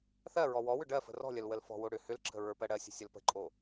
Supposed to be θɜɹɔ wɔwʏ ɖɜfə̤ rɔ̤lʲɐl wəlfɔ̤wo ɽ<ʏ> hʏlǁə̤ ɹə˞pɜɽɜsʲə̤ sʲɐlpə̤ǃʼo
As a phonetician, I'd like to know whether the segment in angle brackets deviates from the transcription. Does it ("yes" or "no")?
no